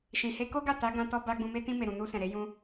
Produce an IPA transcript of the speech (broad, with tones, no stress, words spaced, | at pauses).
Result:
ʃĩ˨he˧ko˦ɡa˦˨ ta˨˦ ɡã˧tɔ˧ ba˧ ɡ͡bũ˧me˦ tĩ˧me˨ɾũ˨ nu˧ sɛ̃˨ɾe˨˦ jũ˦